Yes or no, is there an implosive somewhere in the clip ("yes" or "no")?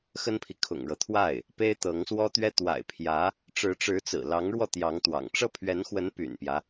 no